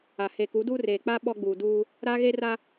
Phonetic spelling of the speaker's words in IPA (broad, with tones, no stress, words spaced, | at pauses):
a˨ he˨ku˨˦duː˦ reː˨k͡pa˦ ɓɔ˦ɡ͡buː˨duː˦ | ɾa˦ɣe˦ra˦